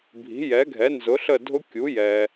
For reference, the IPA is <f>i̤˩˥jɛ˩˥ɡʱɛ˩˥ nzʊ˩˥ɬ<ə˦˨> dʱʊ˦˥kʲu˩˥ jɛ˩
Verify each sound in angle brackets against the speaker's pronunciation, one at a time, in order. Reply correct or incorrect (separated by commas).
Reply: incorrect, correct